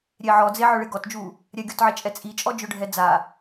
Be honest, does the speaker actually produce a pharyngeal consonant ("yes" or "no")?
yes